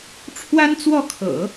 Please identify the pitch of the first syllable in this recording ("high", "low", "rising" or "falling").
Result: high